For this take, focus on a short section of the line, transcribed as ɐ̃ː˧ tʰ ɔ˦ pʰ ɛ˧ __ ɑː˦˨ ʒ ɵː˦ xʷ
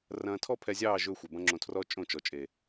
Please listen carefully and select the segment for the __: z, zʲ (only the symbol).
zʲ